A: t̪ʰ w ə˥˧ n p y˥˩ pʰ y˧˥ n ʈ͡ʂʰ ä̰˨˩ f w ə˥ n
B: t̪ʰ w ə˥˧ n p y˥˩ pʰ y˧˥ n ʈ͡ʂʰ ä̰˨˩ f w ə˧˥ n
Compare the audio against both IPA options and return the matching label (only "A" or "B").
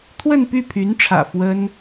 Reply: A